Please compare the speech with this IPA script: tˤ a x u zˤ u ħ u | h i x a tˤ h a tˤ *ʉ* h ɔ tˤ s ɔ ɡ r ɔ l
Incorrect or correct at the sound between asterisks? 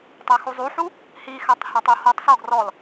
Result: incorrect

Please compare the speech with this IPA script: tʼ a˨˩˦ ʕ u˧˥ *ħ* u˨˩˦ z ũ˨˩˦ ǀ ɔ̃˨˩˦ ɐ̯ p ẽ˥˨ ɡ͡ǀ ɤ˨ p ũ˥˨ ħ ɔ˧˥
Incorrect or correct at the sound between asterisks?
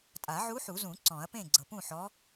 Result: correct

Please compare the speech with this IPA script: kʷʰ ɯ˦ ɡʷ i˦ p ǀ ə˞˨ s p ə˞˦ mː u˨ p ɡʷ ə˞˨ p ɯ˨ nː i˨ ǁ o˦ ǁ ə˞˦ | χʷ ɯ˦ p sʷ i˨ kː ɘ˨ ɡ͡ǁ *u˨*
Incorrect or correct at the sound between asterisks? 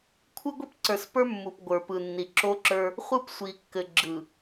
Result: incorrect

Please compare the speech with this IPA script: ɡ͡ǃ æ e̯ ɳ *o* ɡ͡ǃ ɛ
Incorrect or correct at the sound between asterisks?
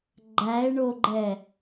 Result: correct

